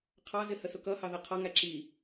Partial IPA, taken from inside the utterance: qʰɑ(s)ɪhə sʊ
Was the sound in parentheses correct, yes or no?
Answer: no